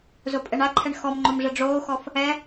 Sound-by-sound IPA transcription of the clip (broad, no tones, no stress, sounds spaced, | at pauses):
z o pʼ ɛ ɳ a ǃʰ ɛ ɳ x ɔ m ŋ͡ǃ o m ʐ ɘ ɖ͡ʐ oː x ɔ f | ɛ